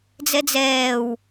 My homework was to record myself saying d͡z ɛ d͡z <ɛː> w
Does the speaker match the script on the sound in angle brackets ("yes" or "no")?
yes